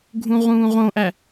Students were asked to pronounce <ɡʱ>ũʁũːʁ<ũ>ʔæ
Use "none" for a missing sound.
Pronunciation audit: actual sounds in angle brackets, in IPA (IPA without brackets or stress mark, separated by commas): ɡʱ, õ